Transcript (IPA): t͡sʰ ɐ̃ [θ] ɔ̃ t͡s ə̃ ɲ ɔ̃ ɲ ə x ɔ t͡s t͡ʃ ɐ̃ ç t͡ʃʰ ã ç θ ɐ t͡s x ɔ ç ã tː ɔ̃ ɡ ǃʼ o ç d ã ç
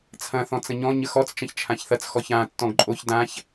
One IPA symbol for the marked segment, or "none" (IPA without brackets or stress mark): θ